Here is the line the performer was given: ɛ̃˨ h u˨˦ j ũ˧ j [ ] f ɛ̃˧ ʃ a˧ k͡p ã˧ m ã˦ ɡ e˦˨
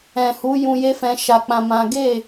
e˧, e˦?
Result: e˦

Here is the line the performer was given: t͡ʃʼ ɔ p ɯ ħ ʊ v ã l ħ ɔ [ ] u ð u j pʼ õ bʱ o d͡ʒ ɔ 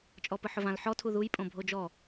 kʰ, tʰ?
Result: tʰ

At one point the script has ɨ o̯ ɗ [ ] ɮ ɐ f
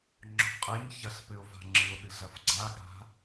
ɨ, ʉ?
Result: ɨ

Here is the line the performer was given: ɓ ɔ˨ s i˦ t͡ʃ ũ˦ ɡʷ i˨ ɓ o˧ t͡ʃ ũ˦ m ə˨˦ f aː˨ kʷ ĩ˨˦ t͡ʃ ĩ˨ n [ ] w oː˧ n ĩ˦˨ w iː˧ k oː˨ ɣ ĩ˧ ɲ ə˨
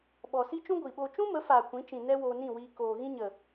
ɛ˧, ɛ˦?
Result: ɛ˦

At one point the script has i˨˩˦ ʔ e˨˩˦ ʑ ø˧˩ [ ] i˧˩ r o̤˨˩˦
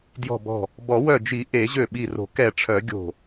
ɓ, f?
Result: ɓ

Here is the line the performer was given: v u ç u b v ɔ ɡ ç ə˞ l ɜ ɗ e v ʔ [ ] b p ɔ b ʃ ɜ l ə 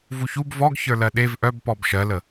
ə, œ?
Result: œ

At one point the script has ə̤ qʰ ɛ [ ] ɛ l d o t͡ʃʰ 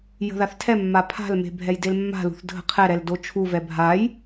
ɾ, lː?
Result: ɾ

